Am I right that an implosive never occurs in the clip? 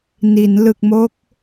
yes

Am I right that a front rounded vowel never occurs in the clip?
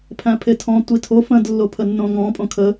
yes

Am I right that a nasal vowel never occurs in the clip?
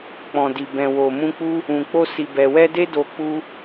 no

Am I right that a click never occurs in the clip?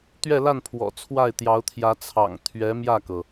yes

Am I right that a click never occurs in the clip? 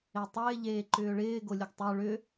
no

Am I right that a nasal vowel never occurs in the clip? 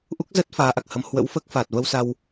yes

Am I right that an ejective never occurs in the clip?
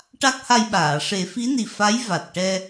yes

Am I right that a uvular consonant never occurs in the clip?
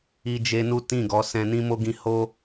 yes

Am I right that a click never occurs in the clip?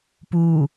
yes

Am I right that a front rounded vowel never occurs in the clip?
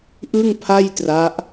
yes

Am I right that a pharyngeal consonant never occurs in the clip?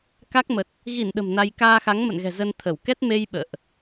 yes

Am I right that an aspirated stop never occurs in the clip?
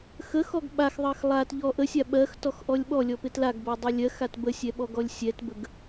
yes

